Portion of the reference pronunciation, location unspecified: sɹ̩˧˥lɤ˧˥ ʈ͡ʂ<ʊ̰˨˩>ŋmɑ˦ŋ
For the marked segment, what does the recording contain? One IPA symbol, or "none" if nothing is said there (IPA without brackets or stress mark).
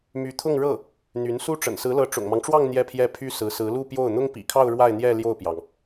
ʊ̰˨˩